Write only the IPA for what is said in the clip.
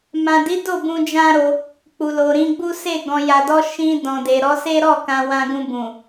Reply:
m ã˨ d i˨˦ d o˦˨ b ũ˧ d͡ʒ ã˦ ɾ o˧ | k͡p u˨ l o˨ ɾ ĩ˧ ɡ͡b u˦ s e˦˨ ɡ ɔ̃˨ j a˨ d ɔ˧ ʃ ĩ˧ d ɔ̃˨ d e˨ ɾ ɔ˨˦ s e˦ ɾ ɔ˦˨ k ã˧ w ã˧ ɡ ũ˧ b ũ˨

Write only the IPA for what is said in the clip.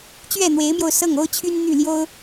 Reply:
t͡ɕ ɥ ɛ˥˩ n̪ w e˧˥ ɪ̯ m j o˧ ʊ̯ s ɤ˥˩ ŋ o˥ ʊ̯ t͡ɕʰ y˥ n n̪ y˥˩ l j o˥ ʊ̯

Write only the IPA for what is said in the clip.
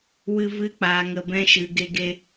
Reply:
w ɨ˦ v ɨ˦ k͡p aː˧ ŋ ə˧ b ɛ̃˦ ʃ ɨ˧ ɡ e˦ ɡ e˦

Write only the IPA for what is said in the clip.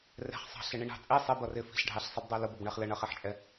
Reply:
r ɛ̤ χ sˤ ɑ̤ ɬ ɪ ɳ i ɳ ɑ̤ t͡sʼ i sˤ ɪ b ʌ r ɪ f i̤ ɬ ɖʱ ɑ ɬ sˤ i b dˤ ɜ l ʊ b ʌ b ɳ ɛ χ l ə ɳ ʌ χ ɛ ħ t͡ʃʼ ɛ

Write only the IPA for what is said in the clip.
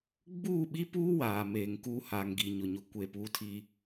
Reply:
ɡ͡b uː˦˨ ɓ i˦ p uː˦ w aː˨ m eː˨ ŋ k uː˦ h aː˨ ŋ ɡ i˨ ɲ ʊ˨ ɲ ʊ˦ kʷ e˦˨ p uː˦ tʰ i˦

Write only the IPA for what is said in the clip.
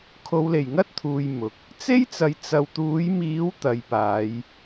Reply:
kʰ o˨˧ w l e˨˩ j ŋ ɐ˥ t̚ t̪ʰ uː˨ j m ʊ˨˥ k̚ | t͡s e˥ j t͡s ɐ˨ j t͡s ɐ˨ w t̪ uː˨˥ j m iː˨˥ w t̪ ɐ˨˧ j p aː˨˧ j

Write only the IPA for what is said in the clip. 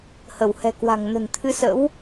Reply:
h ə˧˩ w h ɛ̤˨˩ k w a̤˨˩ ŋ n ə̤˨˩ n t̪ʰ ɨ˧ s ə̰˧˥ w

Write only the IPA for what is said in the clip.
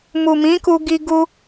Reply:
m u˨ m ĩ˨˦ k u˧ ɡ i˦ ɡ u˦

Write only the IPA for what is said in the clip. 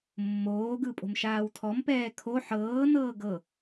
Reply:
mː oː ɡ ɯ pʼ o̤ m ʃ aː w tʰ ɔ m p ɛː kʰ o ħ ɤː n ɤː ɡ ɤ

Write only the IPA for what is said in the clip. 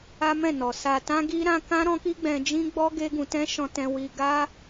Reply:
a˦ m ɛ̃˦˨ n ɔ˨ s a˧ t ã˦ ɡ i˦ ɾ ã˦ k ã˦ ɾ ɔ̃˦ k i˦ ɡ͡b ɛ̃˧ d͡ʒ ĩ˦ ɡ͡b ɔ˦ ɡ e˦ ɡ ũ˧ t ɛ̃˦ ʃ ɔ̃˧ t ɛ̃˧ w i˧ ɡ a˦

